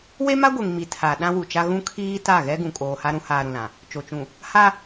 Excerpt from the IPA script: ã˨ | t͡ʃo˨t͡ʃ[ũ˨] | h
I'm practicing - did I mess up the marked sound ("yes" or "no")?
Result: no